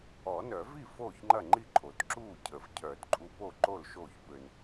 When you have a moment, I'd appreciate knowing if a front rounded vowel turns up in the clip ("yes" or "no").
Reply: yes